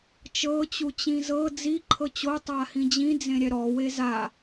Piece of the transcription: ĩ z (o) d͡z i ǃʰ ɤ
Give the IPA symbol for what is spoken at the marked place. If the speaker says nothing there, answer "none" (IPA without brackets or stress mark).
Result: ɤ